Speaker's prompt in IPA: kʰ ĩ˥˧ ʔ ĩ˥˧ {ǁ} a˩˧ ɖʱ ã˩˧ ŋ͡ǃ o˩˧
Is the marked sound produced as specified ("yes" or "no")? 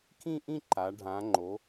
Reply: no